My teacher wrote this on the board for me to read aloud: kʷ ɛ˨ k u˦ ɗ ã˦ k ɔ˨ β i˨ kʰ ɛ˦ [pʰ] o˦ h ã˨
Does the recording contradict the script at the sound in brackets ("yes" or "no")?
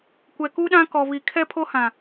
no